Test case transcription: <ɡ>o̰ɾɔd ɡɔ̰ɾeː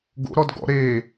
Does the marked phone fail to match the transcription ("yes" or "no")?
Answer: no